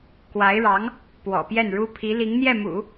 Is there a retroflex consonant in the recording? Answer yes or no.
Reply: yes